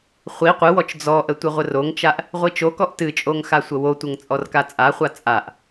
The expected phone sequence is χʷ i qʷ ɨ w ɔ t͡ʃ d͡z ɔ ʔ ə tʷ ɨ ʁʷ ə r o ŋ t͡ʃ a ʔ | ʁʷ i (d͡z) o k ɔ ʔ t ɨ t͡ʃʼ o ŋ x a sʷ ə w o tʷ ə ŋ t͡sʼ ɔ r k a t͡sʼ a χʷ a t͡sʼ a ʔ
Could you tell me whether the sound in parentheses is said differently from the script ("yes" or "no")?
yes